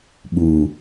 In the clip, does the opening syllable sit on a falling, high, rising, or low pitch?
low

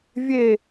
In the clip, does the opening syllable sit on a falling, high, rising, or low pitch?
falling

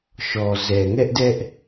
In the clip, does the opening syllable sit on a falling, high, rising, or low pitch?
low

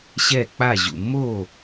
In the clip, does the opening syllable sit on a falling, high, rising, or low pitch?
falling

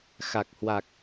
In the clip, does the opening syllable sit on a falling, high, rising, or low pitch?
low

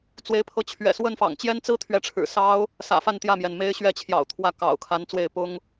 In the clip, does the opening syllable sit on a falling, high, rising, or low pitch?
rising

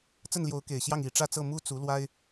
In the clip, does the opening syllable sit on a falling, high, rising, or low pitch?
falling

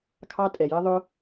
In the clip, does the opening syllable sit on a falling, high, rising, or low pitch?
high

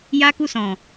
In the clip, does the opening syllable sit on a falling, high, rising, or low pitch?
high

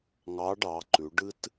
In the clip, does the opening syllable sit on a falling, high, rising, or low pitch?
rising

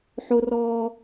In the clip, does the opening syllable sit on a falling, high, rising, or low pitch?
high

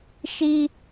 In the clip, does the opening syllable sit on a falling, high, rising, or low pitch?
high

